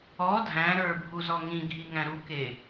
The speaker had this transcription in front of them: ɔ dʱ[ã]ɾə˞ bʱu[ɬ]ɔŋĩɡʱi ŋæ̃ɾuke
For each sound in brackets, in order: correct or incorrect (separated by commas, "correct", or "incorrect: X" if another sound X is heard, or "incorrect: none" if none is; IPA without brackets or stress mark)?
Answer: incorrect: æ̃, incorrect: z